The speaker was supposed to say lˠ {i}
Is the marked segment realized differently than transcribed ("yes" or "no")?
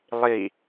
no